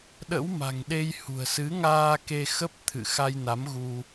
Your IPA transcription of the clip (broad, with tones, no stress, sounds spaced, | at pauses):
ɗ ə̰˧˥ w m a̤˨˩ ŋ ɗ e˧ j h ṳ˨˩ ə̯ s ɨ˨˦ ŋ aː˧ k e˧ x ə˦˥ p̚ t̪ʰ ɨ̰˧˨ x a˧ j n a˨˦ m ɣ u˧